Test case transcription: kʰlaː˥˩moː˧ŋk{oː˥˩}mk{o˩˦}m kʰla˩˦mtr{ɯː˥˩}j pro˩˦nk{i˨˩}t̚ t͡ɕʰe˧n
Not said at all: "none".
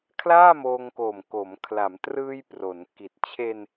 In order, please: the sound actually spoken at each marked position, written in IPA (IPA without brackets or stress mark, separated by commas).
oː˨˩, o˩˦, ɯː˧, i˨˩